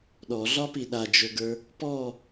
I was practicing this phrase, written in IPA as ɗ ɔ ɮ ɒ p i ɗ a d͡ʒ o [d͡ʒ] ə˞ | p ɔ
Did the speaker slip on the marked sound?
yes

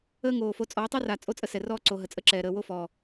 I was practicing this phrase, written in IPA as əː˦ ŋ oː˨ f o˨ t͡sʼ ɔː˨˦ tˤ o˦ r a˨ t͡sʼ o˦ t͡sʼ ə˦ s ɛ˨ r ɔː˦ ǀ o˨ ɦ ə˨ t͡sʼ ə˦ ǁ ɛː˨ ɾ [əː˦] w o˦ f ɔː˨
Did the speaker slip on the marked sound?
yes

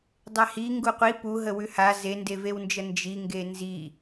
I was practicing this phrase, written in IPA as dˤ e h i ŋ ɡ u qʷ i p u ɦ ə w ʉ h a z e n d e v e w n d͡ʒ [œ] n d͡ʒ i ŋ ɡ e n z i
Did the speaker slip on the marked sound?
yes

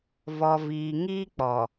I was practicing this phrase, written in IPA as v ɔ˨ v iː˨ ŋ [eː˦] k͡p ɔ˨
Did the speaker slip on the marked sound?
yes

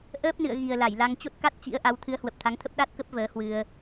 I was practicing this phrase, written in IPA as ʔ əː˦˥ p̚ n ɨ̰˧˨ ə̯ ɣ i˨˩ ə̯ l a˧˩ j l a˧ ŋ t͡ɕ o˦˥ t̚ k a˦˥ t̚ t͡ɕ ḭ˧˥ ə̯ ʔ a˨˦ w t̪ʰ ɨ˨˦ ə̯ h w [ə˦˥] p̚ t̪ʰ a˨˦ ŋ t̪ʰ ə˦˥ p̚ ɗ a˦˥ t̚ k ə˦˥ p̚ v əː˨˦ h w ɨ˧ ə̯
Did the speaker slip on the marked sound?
yes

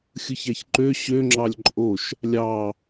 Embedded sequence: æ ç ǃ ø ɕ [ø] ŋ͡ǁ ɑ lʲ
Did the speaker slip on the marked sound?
no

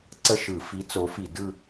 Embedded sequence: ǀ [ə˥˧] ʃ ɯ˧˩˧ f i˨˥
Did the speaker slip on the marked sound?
no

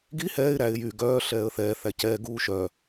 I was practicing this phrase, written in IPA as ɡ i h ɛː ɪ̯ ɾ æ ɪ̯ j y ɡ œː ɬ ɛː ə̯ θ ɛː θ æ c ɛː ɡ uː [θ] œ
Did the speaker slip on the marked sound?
yes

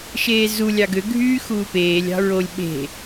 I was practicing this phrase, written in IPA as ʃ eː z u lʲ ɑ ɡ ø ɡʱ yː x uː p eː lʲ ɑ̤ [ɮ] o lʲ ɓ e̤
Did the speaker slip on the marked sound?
yes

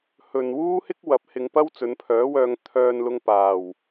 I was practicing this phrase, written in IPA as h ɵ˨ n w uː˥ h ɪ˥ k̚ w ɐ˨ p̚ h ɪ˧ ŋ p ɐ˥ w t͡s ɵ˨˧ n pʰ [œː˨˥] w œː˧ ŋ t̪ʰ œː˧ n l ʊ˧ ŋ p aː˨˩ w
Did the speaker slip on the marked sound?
no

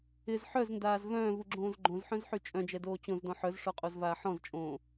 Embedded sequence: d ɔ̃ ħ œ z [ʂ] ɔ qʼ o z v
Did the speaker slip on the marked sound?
no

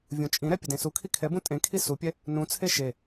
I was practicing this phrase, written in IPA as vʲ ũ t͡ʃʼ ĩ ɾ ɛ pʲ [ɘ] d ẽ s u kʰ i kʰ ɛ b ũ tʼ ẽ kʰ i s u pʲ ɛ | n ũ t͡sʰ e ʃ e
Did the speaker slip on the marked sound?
no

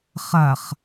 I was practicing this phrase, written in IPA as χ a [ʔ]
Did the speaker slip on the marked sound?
yes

